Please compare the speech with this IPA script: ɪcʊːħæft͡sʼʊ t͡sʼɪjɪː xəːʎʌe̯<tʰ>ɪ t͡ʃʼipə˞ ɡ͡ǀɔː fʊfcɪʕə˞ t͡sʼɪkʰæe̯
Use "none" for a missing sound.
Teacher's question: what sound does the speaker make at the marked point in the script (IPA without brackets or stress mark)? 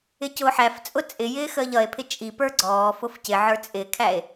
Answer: pʰ